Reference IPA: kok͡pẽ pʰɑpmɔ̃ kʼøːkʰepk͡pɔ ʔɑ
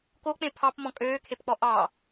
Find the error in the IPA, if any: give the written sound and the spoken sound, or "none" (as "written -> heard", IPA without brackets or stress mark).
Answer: none